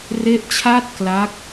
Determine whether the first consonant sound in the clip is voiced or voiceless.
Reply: voiced